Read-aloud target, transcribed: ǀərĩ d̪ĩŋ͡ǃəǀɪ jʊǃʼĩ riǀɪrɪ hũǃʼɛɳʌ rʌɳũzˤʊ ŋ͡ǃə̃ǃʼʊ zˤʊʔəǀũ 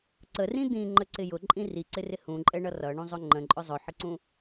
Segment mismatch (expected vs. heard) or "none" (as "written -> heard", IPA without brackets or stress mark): ʔ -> ħ